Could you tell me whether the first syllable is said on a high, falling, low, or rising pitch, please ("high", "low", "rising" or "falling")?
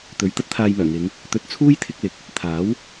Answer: rising